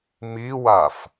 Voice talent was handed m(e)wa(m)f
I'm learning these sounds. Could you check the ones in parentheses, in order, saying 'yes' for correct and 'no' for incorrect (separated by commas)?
no, no